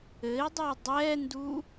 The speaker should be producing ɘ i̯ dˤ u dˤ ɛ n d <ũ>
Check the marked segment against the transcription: incorrect: u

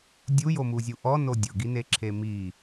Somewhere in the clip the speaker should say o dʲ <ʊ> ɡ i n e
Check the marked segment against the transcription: correct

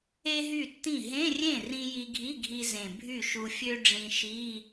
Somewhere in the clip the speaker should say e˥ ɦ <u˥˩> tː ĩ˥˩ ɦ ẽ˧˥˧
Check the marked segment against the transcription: incorrect: y˥˩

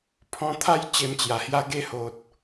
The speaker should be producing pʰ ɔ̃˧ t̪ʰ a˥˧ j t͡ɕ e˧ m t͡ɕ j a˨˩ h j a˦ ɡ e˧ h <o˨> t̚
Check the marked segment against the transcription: correct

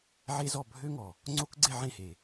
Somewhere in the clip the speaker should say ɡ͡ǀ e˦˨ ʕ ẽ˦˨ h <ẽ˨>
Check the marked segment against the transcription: incorrect: e˨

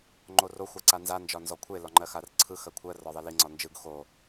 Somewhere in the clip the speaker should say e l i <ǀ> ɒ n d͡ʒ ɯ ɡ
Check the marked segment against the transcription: incorrect: ŋ͡ǀ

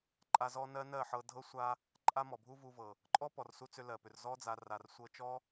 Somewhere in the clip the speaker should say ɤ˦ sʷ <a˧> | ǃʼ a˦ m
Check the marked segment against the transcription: correct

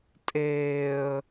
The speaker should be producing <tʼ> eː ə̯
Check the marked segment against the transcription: correct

